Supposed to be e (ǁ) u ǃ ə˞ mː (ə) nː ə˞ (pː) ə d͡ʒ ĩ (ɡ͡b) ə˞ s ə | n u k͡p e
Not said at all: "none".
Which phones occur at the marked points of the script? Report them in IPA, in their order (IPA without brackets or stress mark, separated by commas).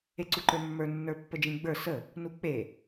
ǀ, ə˞, pː, ɡ͡b